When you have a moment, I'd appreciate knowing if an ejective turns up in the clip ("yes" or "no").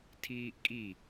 yes